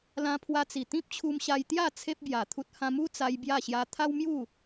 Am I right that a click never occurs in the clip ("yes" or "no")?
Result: yes